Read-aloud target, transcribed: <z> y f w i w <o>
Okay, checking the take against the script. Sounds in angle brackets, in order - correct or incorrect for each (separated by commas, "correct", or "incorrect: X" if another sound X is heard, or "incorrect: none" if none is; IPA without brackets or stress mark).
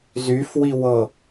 correct, incorrect: ɤ